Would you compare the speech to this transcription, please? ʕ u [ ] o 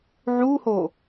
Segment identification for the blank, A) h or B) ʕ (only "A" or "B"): A